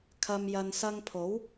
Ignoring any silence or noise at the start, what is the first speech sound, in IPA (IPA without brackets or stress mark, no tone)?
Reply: kʰ